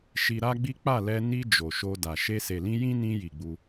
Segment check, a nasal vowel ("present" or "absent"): present